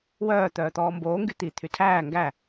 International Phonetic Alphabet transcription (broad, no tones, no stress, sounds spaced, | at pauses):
w œː t̪ œː t̪ ɔː m b oː ŋ ɡ y t̪ i t̪ʰ y tʰ æː ŋ ɡ æ